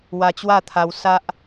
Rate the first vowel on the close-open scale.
open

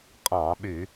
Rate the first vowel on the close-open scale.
open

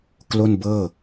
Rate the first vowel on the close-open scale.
mid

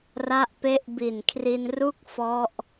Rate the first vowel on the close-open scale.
open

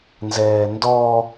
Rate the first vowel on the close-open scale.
mid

